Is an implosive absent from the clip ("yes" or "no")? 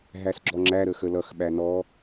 no